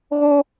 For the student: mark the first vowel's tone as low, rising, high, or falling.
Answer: high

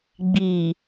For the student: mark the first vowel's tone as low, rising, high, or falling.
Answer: low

